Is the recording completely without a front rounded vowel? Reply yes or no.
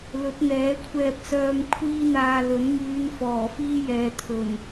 no